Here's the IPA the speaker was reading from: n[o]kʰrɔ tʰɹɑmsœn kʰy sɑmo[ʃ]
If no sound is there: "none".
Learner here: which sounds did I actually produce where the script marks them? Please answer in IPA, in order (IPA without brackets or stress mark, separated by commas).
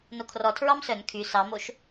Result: o, ʃ